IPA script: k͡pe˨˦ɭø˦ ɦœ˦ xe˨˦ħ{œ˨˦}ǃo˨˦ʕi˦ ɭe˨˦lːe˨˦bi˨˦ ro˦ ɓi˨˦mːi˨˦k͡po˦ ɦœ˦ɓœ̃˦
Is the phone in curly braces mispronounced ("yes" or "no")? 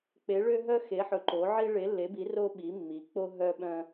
yes